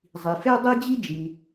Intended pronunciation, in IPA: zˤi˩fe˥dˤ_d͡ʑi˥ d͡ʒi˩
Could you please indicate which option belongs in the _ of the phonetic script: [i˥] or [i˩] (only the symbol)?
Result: i˥